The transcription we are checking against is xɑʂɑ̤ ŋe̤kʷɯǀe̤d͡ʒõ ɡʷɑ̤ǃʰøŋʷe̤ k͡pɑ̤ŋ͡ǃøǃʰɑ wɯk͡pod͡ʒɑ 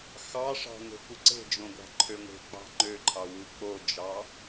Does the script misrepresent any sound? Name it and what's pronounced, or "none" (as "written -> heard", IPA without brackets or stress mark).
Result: none